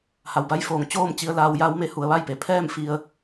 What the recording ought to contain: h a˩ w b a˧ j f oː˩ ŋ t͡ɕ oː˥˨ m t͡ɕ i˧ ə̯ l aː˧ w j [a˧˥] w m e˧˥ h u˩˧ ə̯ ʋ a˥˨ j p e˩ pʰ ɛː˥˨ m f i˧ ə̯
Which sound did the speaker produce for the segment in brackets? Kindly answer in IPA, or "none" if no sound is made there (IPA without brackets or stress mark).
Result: a˧˥